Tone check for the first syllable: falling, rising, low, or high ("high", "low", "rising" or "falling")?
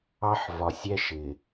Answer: high